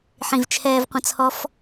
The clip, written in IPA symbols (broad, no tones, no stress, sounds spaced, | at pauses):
ħ ĩ v t͡ʃʰ ɛː v qʷ ə̃ t͡sʰ ɔ f